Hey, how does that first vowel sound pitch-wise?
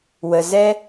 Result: low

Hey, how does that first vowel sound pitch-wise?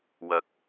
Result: rising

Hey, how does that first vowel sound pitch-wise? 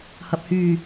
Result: low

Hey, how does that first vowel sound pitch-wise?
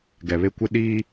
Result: low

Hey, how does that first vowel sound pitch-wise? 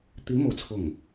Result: rising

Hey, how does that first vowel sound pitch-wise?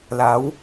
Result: rising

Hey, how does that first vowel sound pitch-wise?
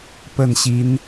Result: falling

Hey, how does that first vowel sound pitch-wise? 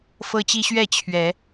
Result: high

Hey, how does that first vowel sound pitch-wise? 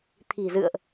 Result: low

